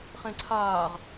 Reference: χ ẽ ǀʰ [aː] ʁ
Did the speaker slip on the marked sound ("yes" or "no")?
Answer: no